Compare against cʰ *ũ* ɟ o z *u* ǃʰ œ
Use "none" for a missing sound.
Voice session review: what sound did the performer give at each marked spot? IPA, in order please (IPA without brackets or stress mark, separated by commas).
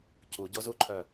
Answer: u, u